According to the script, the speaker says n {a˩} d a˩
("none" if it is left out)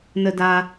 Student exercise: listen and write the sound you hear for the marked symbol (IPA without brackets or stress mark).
ə˩